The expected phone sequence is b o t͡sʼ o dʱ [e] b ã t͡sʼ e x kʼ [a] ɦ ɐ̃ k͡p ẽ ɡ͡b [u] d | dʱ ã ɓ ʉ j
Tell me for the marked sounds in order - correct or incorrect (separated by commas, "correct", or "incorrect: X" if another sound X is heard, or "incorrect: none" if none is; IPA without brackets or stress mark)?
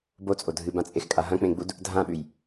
incorrect: ɨ, correct, correct